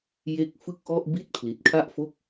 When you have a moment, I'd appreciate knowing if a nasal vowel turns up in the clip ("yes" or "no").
no